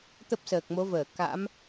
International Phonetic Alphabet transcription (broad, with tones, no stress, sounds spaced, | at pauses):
t̪ ə˦˥ p̚ s əː˨˩ k̚ m o˨˦ v əː˧˩ k a̰˧˥ m